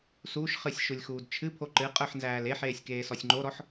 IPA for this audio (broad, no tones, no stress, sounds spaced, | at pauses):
s u ʃ χ ɨ sʲ ʃ u lʲ x uː d t͡ʃʰ ɨ pʰ o ǃ ɨ qʼ ə˞ ħ n z æː l e ħ eː sʲ k eː s ɔ sʲ ŋ͡ǃ o ɾ ɔ ħ